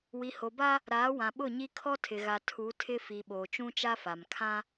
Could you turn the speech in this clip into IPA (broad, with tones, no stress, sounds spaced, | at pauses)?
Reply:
w i˨ h o˨ b a˦ | ɾ aː˨˦ w ã˨ ɓ ʊ˦˨ ɲ i˦ kʰ ɔ˦ tʰ ɪ˨ ɣ a˨ tʰ u˨˦ tʰ ɪ˦ f i˨ ɓ oː˨ t͡ʃ ũ˦ t͡ʃ a˦ f a˨ m kʰ ã˦